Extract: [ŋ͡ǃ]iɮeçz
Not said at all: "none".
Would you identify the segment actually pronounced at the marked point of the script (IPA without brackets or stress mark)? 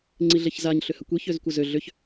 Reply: ŋ͡ǀ